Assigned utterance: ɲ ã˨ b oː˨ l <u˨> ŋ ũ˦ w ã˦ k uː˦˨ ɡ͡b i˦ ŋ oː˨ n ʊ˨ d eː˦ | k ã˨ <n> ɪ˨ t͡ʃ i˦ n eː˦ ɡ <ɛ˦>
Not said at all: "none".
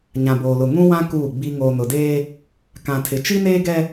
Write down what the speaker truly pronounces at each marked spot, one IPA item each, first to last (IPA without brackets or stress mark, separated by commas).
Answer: ʊ˨, tʰ, ɛ˦